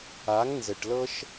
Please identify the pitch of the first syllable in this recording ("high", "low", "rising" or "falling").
rising